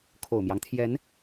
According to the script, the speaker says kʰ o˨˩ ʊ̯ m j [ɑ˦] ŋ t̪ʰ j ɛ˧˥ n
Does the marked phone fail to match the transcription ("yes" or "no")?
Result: no